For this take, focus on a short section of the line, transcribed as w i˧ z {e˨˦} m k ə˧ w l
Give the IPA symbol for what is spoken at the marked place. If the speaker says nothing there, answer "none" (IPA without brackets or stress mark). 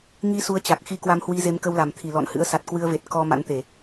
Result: e˨˦